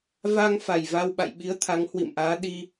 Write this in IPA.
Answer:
va˧ŋfa˨˩j va˧wɓa̰˧˨jɓi˨˦ə̯t̪ʰa˨˦ŋ hwḭ˧˨mʔaː˨˦ɗi˧

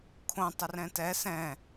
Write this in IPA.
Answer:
kʰõ tˤɛrɛ̃tɛ sɛ̃

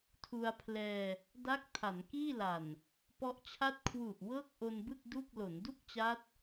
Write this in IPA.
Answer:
tʰu˧a̯pʰlɛː˧ | da˦˥k̚ tʰa˩˦nkiː˥˩la˨˩n | pɔ˦˥ʔt͡ɕʰa˥˩t̚ kʰwu˨˩ʔ wɤː˥˩k̚ʔo˧nbɯ˥˩k̚ du˥˩k̚ lo˩˦ndu˥˩k̚t͡ɕa˦˥t̚

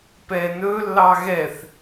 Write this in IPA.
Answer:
pɛnɵlːɑ ɣɛθ

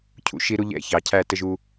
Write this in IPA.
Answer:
cʰṵ˦ ʃi˦ɾu˦ʎɛ̰˦˨ çɑ˨cʰæ˦˨tə˦ʒ u˦

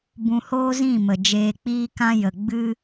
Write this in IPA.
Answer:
bũ˧hoː˦zĩ˦˨mə˨ d͡ʒeː˧k͡piː˦kã˦ jə˨ ɡ͡bɨ˦

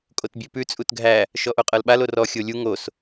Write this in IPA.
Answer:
kʼotbʲʉpʉ t͡sʼutɡʱæ | ʃɔʔoqʼɤlɓal orɔ xʲolʲu ŋos

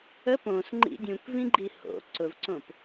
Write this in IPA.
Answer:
ə põsŋ͡ǃḭ dʲũkvĩɡ͡ǃi ho̰ ǀʊvǀõp

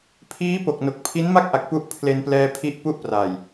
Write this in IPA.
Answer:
pʰiː˦˥po˨˩k̚no˨˩k̚ pʰi˦˥nma˥˩k̚ʔa˨˩k̚ pu˦˥ʔpʰle˧nplɛː˧pʰi˦˥ʔ pu˥˩ʔpra˨˩j

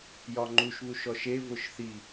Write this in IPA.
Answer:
jɒŋ͡ǃuʃβuʃ ɔʃe vʊʃθi

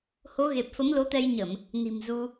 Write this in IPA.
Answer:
ho˨˦ɣe˨˩p̚ fə˨˦mlo˨˦t̪ɛ˧jɲə˧˩˨m | ni̤˨˩mzu˧

